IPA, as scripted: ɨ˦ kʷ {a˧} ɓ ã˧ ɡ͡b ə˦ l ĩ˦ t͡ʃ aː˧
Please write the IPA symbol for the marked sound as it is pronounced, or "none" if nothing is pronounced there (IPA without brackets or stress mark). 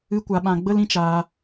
a˧